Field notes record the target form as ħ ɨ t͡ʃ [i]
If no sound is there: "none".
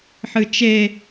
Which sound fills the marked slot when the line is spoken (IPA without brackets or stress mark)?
e